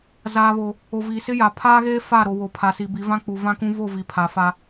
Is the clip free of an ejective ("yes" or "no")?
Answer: yes